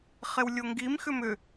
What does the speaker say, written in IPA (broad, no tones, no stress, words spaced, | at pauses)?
χewlʲoŋɡim xʏmʏ